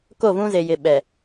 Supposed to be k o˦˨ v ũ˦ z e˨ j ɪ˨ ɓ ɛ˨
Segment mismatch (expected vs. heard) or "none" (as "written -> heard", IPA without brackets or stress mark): none